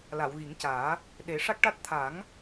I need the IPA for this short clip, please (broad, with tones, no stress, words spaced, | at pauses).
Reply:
la˨˩˨wɣi˨˩˦ŋcaː˨˩˦ | ɗe˨˩˦ʂa˦˥k̚ʈa˦˥t̚ t̪ʰa˨˩˦ŋ